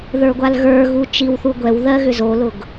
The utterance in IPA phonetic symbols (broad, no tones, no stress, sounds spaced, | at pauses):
ð ə˞ ɡʷ a l ɣ ə˞ ɣ u t͡ʃ i w θ u ɡʷ ɛ w ð ɜ ɣ ʏ z o l ʊ ɡ